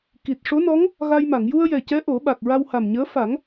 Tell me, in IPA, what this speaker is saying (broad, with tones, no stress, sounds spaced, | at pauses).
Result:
k i˨˩ t̚ ʂ o˧˥ n ɔ˧˥ ŋ | ɣ a˧ j m a˨˩˨ ŋ j u˧ ə̯ j ɛ˨˩ c ɛ˧˥ ʔ o˨˩˦ ɓ a˨˩ k̚ ɹ a˧ w h a˨˩ m ɲ əː˧˥ f a˨˩˦ ŋ